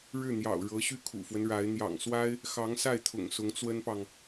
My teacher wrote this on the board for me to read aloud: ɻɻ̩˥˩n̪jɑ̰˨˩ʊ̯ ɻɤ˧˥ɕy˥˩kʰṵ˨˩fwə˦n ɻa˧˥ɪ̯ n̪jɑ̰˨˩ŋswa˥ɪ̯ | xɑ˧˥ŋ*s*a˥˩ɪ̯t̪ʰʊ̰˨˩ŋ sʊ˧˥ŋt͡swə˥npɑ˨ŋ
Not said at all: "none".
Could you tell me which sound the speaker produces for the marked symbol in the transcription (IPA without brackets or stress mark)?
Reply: s